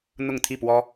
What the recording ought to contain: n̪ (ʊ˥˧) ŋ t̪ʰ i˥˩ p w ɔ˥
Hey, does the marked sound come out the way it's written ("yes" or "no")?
yes